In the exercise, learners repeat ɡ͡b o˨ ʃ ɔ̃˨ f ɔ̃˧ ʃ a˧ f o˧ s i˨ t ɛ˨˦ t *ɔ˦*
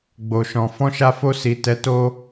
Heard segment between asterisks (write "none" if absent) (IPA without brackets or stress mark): o˦